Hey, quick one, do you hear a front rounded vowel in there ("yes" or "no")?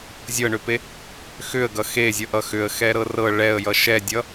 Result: yes